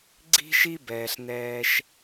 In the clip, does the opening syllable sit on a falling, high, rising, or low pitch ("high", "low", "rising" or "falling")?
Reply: high